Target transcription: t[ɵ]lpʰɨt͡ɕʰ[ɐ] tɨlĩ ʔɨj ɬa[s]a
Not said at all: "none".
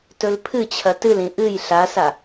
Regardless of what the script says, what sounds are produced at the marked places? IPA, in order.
ɵ, ɐ, s

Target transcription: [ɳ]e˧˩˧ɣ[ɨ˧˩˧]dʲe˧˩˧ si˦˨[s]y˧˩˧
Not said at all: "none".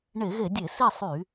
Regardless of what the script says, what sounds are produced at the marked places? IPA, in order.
ɳ, e˧˩˧, sˤ

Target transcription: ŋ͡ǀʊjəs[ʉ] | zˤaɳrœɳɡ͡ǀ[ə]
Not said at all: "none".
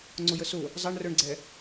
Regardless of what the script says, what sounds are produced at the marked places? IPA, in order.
ʊ, ɛ

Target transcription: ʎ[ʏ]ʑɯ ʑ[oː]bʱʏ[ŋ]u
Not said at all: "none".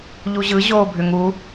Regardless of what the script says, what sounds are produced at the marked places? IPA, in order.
u, oː, ŋ

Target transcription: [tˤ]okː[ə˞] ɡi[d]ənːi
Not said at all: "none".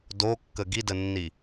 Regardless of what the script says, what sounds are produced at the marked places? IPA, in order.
d, ə, d

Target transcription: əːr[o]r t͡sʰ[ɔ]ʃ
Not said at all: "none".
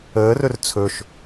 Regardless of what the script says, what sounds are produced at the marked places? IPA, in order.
ɵ, ɵ

